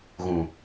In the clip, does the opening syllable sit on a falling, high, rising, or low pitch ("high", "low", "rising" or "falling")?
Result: low